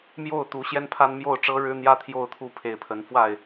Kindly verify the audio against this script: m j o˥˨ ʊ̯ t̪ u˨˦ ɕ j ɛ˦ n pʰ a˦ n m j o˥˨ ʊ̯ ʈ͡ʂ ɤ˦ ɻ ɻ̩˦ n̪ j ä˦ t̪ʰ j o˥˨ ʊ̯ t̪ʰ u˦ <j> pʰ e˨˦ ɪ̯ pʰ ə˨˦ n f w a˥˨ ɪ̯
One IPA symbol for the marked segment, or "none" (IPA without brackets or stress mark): none